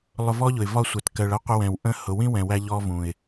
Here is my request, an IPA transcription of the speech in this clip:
lˠ ʊ˧ v ɔ˦ ʎ ʊ˨ ɪ̯ v ɒ˦˨ sʷ ɛ˨ t k ɜ˨ ɭ ʌ˦ qʷ ə˧ w ɛ̃˨ w ʔ ə̃˧ h ʊ˨ w ĩ˦ w ɛ̃˨ w æ˧ ʎ ɔ˧ v ũ˨ ɪ̯

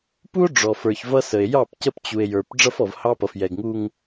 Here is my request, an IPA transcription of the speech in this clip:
p u˦ o̯ ɖ͡ʐ ɔ˨ f ə˞˨ ç v ʌ˦ s ə˨ e̯ j ɑ˦˨ p c ə˦ p t͡ɕ u˨ e̯ j ə˞˨ p ɖ͡ʐ ʌ˦ f ɔ˨ v h ɑ˦ p ʌ˨ f j ɛ˨ ɡ ŋ u˦ ŋ

